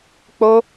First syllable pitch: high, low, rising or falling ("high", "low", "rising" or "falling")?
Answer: high